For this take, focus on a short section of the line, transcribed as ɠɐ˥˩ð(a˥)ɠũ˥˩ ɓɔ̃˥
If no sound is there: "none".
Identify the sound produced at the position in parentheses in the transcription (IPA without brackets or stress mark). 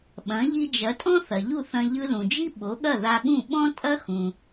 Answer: a˧